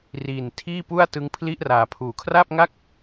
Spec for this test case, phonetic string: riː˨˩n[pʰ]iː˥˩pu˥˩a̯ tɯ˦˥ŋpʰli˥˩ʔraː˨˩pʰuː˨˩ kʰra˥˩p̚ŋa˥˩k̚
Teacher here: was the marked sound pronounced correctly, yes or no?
no